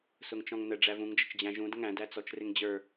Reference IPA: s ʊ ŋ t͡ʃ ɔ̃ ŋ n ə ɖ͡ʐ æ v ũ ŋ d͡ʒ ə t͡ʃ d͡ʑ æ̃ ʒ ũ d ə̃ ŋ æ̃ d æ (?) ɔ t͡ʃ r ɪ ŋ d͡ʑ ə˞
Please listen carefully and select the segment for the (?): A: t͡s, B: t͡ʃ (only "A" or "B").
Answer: A